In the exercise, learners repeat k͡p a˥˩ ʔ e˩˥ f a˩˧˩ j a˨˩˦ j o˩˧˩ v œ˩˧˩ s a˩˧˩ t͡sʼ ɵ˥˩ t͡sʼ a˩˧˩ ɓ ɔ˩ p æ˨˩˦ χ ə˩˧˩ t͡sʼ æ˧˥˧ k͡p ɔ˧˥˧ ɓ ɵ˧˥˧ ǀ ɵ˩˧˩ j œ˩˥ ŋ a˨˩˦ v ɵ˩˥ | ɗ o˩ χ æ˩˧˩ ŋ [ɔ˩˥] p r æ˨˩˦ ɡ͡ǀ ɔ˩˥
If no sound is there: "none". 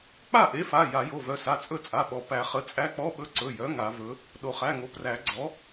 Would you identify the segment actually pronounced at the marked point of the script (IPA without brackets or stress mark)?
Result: o˩˥